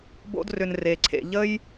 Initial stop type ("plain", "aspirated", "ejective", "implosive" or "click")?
plain